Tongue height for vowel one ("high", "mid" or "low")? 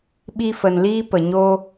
high